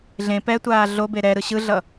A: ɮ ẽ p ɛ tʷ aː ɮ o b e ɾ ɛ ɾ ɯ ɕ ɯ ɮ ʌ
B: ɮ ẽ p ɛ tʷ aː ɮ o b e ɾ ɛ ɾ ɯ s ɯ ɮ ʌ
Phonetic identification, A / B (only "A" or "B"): A